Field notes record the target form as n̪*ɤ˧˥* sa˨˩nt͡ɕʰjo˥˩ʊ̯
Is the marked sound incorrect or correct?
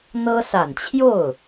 incorrect